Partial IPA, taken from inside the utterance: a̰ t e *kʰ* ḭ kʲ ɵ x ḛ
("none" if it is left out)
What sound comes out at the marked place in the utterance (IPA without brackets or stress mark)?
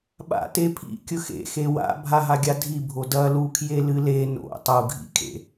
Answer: pʰ